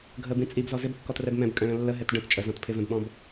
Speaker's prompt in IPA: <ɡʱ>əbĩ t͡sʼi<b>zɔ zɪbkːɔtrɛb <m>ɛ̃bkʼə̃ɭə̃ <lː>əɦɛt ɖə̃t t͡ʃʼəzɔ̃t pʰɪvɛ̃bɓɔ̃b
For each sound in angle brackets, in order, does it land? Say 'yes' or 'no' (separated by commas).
yes, yes, yes, yes